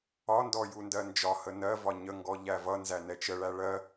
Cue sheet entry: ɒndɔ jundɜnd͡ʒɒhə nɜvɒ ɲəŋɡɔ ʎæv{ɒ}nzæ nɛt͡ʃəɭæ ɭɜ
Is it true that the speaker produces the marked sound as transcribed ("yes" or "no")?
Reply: no